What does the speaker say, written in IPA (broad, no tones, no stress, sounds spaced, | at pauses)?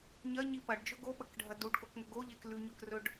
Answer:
ɲ ɐ ɲ i p ɐ ɖ d͡ʒ ɵ ɡ o ɓ ɐ k ɖʱ ɐ d u ɖ k o k ŋ ɵ ɡ o ʎ e k l ʉ ɲ ɵ k r ɵ ɖ